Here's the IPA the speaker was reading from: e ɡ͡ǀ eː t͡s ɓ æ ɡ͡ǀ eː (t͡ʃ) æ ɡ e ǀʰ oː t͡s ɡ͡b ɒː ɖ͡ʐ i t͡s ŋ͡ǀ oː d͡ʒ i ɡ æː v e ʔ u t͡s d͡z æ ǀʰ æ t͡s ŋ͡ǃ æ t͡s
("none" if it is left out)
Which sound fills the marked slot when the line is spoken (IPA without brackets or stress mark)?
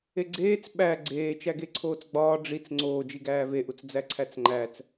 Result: t͡ʃ